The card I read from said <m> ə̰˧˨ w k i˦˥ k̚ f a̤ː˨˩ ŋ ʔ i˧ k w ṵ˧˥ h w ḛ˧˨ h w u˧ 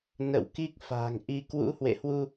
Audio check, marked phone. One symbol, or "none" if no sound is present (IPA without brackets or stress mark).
n